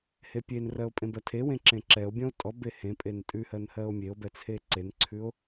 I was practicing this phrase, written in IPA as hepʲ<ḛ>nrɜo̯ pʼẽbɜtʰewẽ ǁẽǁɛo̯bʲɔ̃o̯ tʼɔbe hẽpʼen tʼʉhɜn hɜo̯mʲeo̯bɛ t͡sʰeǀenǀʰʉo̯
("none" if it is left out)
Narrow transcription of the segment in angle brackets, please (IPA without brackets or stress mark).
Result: e